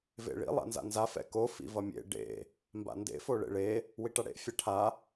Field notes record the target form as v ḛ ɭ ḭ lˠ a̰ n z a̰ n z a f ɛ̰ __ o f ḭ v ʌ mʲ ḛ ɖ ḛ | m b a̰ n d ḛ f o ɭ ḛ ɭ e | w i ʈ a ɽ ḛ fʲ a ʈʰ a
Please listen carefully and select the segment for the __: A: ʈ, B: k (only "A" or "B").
B